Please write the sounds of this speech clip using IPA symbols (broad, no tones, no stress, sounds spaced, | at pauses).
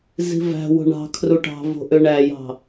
z i̤ v æ̤ w o̤ ɳ ɑ̤ kʰ r u ʈ ɑ̤ v o̤ ʔ ø ɳ æ j ɑ̤